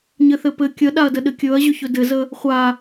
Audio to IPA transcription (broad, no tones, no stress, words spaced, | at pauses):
ɲɘθɘpɘ kʲəɗaɐ̯dəɗɘ kʲɵɐ̯ʑɵçɵ dɘzə | χʷa